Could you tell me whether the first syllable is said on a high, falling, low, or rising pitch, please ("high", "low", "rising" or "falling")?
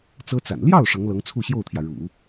high